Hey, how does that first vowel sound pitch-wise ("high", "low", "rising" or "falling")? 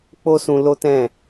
high